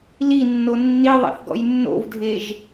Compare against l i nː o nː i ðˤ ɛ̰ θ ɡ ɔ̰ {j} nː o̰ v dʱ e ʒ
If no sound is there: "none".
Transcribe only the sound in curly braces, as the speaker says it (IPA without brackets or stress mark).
j